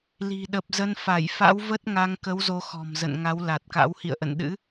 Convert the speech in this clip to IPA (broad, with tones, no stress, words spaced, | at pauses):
li̤˨˩ ɗə˨˩p̚zə˧nfa˧˩j fa̰˧˥wvə˦˥t̚ŋa˧ŋkə˨˦w zo˧xɔ̤˨˩mzə̰˧˨n ŋa˨˦wla˨˩t̚ka̰˧˥w hḭ˧˨ə̯ʔə̰˧˨nɗɨ̰˧˥